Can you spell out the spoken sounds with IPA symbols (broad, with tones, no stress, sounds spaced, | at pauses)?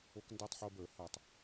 o˦ k n d ɛ˥˨ tˤ ħ o˦ b ə˞˨˩˦ h ɐ˨˩˦ tˤ